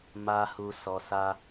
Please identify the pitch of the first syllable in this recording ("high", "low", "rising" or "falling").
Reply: low